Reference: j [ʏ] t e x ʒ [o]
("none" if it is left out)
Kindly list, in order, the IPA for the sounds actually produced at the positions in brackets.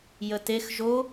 ə, o

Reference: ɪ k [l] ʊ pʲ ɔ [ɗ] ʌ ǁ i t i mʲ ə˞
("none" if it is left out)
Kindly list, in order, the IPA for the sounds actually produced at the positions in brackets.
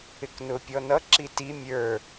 n, n

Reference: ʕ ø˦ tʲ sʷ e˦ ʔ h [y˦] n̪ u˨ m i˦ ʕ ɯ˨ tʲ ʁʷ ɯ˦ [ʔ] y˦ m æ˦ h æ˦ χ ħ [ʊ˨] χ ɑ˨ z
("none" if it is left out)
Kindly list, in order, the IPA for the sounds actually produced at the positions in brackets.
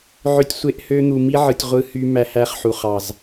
ø˦, h, u˨

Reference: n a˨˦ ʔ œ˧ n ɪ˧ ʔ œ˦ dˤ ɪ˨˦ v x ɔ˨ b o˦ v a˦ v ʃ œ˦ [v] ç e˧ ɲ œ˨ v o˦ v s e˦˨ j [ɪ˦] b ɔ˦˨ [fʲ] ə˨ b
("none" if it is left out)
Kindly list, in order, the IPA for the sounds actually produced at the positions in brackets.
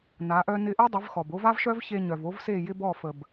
v, ɪ˦, f

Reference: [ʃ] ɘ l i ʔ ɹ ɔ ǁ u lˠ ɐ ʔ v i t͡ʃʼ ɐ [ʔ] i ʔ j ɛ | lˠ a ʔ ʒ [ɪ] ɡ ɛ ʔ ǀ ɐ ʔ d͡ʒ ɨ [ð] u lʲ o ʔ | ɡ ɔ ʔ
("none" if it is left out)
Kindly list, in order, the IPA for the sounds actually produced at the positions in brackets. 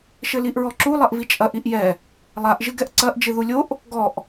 ʃ, ʔ, ɨ, ð

